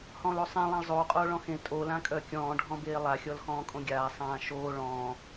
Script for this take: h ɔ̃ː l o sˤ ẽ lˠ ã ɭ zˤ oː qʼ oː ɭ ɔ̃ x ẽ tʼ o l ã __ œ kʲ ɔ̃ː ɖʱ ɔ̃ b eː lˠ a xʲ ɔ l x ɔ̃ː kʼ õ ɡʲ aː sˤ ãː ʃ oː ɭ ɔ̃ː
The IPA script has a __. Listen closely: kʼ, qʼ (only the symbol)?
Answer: kʼ